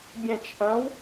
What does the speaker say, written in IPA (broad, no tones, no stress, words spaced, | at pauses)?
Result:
bʲɛ̃t͡ʃ ʔɐ̃w